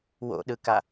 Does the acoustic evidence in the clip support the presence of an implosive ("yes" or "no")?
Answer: yes